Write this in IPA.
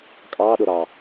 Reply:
kʼɑɗʊ ɾɑ

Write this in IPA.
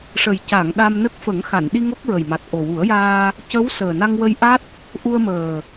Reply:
ʂə˨˩jca˨˩˨ŋ ɗa˧mnə˦˥k̚ fə˨˩˦ŋxa˨˩˨nɗi˧ ŋo˦˥k̚ɹə˨˩jma˨˩t̚ ʔo˨˩wu˨˩˦ə̯jaː˧ | cə˧˥w səː˨˩na˧ŋwə˧jʔa˦˥t̚ | ʔu˧ə̯məː˨˩

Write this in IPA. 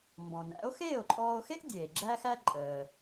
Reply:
mbɔ̃˩næ̰˩˥o̯ xeː˥˩o̯ǃʼɔː˧o̯xe˥ʔ dʲeː˩ɡ͡ǁæ˥xæ˥ ǃʼəː˩

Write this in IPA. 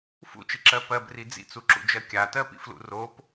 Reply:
fṵt͡ʃiǁɜ pɜbri d͡zḭt͡suǁṵd͡ʒɜ kʲatɜpḭflṵ rop

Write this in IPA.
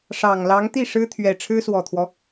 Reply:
ʂɑ˨˩ŋ lɑ˧˥ŋt̪i˥˩ ʂɻ̩˥t̪ʰɥɛ˨˩ ʈ͡ʂʰɻ̩˥swɔ˨˩t̪ʰwɔ˦

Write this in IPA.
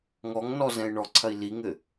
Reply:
ŋɔŋnɔ zɛ̃i̯ɳɔǀʰɐi̯ liŋɘ

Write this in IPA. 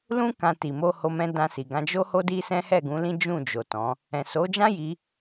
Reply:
lũ˦ kã˧ ti˨mo˧ho˧mɛ̃˧ dã˧si˨ɡã˧ d͡ʒo˦ho˦di˦ sɛ̃˦hɛ˦˨ɡũ˨˦lĩ˦ d͡ʒũ˦˨d͡ʒo˨tɔ̃˨˦ | ɛ̃˨so˨˦d͡ʒã˦ji˧

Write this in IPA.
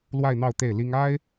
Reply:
lwa˥˧ɪ̯n̪ɑ˥˧ʊ̯ t̪e˥˩ɪ̯li˥ŋ a˥ɪ̯

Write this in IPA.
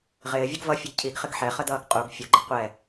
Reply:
ʁɪːvʲʊɡ vʌfʲəɡ cʰiɡχɪɡ ħɛχədʌːɡ qʼuɡ fʲʊɡ͡ǃɪ qʷɛ

